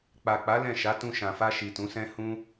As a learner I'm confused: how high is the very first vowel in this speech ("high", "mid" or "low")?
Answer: low